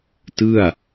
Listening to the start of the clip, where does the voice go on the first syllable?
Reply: falling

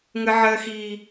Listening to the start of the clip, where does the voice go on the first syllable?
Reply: high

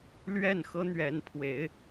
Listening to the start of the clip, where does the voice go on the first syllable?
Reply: falling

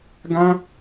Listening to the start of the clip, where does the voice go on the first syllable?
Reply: high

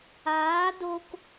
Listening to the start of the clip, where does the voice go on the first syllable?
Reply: rising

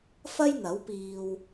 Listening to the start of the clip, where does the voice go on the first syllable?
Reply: high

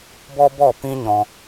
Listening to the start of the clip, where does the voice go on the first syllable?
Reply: high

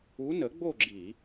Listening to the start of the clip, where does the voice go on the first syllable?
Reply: rising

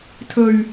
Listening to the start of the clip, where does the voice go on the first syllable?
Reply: low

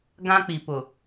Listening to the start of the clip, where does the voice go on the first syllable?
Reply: high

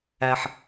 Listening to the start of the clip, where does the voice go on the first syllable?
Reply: low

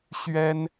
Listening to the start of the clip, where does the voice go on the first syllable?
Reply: high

